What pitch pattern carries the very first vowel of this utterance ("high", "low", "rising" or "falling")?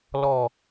low